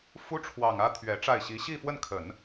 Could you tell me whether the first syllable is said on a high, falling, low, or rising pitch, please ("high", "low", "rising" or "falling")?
high